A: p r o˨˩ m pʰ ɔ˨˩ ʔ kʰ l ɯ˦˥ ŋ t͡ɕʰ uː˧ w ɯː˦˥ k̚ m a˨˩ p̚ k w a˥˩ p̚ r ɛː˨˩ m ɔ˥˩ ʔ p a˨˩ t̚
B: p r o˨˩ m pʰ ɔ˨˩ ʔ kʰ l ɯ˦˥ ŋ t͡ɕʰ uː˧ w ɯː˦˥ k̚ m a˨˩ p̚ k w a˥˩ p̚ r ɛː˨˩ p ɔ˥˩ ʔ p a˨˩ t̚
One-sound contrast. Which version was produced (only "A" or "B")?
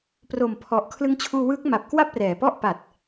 B